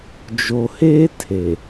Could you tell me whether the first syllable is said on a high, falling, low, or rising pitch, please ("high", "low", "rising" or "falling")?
low